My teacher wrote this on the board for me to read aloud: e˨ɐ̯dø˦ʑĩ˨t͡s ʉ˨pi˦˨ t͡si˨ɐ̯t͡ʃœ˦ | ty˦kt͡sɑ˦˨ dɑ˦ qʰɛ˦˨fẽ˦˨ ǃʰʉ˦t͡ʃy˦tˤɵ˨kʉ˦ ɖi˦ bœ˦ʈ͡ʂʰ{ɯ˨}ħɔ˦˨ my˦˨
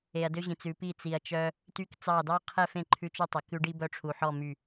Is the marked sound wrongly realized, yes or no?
yes